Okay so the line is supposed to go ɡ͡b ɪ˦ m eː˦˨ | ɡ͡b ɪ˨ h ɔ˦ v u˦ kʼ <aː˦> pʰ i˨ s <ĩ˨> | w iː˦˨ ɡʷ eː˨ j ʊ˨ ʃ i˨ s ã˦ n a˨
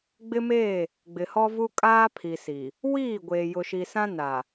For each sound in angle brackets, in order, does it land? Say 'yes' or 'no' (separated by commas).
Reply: yes, no